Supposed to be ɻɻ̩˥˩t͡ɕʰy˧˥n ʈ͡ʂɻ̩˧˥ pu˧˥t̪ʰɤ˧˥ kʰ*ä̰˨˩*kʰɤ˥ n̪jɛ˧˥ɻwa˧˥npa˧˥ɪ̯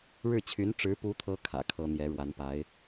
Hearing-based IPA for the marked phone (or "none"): ä̰˨˩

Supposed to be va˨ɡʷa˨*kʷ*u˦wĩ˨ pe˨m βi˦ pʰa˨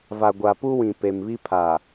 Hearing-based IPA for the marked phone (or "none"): p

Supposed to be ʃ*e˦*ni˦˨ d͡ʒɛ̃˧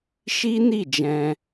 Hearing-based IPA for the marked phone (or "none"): i˦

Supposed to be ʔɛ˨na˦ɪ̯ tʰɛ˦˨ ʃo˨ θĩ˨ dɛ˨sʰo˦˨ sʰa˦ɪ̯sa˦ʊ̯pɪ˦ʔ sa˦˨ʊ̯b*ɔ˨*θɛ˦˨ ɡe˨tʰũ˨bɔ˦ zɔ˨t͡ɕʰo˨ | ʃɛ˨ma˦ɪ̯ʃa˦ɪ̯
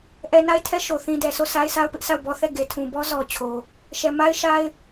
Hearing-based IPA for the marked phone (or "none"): ɔ˦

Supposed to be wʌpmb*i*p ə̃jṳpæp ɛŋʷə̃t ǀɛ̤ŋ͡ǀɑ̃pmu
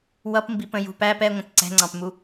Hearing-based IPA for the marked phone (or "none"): i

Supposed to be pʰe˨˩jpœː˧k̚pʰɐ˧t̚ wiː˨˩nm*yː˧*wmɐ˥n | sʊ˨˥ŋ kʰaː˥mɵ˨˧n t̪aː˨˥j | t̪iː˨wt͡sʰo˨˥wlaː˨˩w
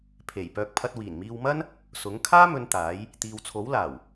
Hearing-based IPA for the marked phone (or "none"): iː˧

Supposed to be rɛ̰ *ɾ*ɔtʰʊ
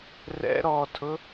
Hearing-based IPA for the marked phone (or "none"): ɾ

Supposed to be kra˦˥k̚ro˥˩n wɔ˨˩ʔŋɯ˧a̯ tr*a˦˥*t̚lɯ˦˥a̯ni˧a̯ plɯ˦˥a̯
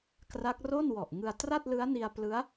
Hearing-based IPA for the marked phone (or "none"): a˥˩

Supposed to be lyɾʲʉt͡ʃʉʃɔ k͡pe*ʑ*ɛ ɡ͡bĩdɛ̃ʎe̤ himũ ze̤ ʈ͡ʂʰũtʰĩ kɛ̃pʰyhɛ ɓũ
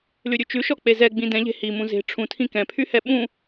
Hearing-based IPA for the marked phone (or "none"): z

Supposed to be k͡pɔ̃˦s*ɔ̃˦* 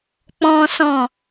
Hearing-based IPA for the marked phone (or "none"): ɔ̃˦˨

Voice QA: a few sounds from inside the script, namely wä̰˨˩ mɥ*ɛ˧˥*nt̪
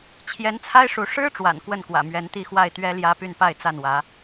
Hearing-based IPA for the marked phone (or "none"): ɛ˧˥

